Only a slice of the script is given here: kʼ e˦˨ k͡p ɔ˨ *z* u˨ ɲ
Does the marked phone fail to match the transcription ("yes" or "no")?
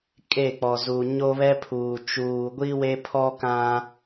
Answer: no